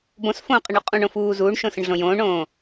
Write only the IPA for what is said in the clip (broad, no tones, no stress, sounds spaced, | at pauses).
b õ s f õː qʼ ə ɳ u qʼ ũ ɳ õ f uː z uː ɳ ʃ õ s ə̃ ɳ ɮ õ j õː ɳ õː